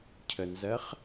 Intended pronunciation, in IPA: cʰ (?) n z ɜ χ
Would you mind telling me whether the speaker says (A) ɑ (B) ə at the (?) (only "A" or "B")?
B